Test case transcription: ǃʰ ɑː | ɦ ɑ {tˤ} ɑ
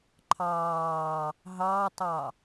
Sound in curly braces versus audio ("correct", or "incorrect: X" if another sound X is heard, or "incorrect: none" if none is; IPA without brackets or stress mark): correct